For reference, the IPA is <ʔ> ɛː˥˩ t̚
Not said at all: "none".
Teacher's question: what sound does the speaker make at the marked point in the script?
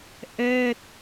ʔ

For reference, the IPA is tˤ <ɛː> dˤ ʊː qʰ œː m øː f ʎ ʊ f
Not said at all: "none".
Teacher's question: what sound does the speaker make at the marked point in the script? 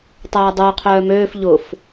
ɛː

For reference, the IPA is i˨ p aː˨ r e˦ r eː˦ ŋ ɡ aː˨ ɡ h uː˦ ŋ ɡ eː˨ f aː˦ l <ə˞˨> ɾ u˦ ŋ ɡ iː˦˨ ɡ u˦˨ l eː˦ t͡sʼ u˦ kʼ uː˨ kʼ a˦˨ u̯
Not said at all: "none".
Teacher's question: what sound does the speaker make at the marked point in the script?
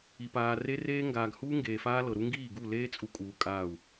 ɤ˨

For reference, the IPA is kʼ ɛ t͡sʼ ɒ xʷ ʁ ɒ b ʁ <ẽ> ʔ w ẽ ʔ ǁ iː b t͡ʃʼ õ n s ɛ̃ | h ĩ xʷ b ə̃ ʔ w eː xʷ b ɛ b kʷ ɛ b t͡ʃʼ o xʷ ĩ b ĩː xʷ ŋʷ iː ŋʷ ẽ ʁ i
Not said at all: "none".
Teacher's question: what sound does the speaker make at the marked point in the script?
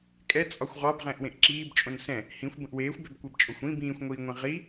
ɛ̃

